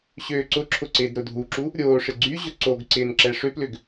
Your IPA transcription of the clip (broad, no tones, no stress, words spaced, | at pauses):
ɕøːǀʊǁʰʊ ǀɪːdɾʊdʱuǁu | ɾʲoːʂɪ ɡ͡ǀy ʑʊǀoɡǀɪːn ǁɛʂʏplʏɡ